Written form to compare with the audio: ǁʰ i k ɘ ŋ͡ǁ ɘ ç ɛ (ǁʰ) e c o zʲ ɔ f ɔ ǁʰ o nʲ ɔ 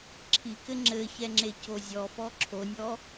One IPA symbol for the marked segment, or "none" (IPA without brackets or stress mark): ŋ͡ǁ